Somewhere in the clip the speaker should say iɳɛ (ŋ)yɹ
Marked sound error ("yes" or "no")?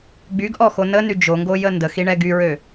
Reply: yes